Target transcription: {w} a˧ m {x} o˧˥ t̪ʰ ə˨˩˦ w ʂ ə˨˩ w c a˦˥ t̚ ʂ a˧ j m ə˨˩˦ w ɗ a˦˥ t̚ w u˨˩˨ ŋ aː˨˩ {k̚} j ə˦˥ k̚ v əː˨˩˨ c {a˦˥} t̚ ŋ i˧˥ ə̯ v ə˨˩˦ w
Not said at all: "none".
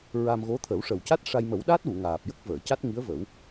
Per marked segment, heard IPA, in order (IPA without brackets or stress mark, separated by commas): ɹ, ɣ, p̚, a˦˥